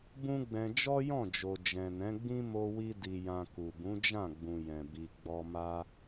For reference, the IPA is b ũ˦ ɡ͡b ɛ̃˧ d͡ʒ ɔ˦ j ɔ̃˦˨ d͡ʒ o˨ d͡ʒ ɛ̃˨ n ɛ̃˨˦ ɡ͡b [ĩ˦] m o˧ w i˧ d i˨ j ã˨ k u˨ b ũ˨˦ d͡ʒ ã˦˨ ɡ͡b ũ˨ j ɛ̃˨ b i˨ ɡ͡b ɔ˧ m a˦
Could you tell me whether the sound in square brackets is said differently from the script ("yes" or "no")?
no